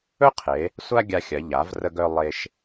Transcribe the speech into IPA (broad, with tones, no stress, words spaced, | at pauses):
ɵ˥qʰe˩˧ | sʷa˥ɡʲa˧xʲɐ˩˧ ʎa˩˧vrə˧ɡœ˧ lˠe˧ʃ